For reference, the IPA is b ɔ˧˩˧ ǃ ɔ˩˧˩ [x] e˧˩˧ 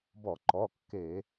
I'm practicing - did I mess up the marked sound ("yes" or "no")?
yes